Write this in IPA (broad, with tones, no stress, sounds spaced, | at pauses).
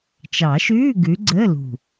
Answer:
t͡ʃ ɑ˨˩˦ ʃ ʉː˧˥˧ ɡ ʉ˨˦ ɡ͡ǀ əː˧˥˧ l ṳ˨˩